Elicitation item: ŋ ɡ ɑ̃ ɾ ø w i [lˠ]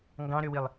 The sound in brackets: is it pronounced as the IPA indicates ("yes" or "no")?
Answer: yes